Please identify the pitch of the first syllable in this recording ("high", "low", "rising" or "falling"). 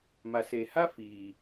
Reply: low